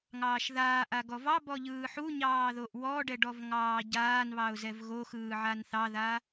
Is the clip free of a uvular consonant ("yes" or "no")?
yes